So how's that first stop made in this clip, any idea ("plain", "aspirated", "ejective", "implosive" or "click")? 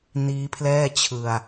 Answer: aspirated